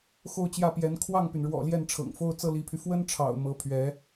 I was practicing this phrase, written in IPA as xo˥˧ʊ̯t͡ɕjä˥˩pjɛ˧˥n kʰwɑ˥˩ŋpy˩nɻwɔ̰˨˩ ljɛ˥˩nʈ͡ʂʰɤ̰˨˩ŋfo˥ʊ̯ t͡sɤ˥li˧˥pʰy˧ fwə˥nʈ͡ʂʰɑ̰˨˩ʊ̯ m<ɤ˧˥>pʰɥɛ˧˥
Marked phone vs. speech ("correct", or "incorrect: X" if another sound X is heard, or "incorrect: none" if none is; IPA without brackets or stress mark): correct